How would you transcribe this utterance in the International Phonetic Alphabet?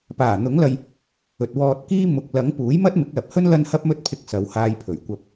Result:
p aː˨˩ n̪ ʊ˨˥ ŋ l ɐ˧ j | ɵ˨ t̚ w ɔː˧ t̚ k iː˥ m ʊ˨ k̚ l ɐ˨˥ ŋ p uː˨˥ j m ɐ˥ t̚ m ɪ˨˥ k̚ l ɐ˨ p̚ h ɵ˥ n l ɐ˥ n h ɐ˥ p̚ m ɵ˥ t̚ pʰ ɪ˧ k̚ s ɐ˨˧ w h aː˧ j pʰ ɵ˨˩ ɥ kʷ ɐ˧ p̚

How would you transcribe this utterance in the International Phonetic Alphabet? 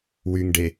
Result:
w y ŋ ɖ e

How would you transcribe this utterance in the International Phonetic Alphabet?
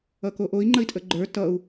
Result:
ʌ k o ʔ o i̯ ŋ͡ǃ ə i̯ tʼ ə ɡ͡ǃ ə˞ t ʌ u̯

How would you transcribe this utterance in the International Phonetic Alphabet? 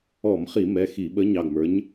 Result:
ɔ˧˩˧ m χ i˧˩˧ m ɛ˩˧˩ x i˧˩˧ ɓ ə˨˥ ɲ ɑ˩˧˩ ɡ m ə˞˨˥ ɲ

